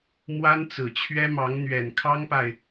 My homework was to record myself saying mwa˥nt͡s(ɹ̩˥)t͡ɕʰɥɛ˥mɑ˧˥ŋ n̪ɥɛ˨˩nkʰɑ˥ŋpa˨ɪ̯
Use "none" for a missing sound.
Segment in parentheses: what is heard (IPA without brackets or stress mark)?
ɹ̩˨˩